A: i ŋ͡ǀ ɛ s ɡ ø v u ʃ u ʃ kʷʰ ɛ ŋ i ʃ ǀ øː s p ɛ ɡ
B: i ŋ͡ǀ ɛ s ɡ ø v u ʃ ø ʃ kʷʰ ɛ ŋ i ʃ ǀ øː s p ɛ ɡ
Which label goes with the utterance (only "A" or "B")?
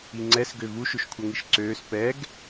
B